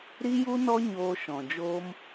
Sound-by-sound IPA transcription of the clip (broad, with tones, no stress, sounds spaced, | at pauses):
ɾ i˦ j u˦ n ɔ˦ ɲ oː˧ ʃ ɔ̃˨ d͡ʒ oː˦ m